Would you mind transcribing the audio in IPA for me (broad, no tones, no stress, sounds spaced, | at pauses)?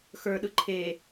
x ə˞ ɗ ɯ ǃʰ e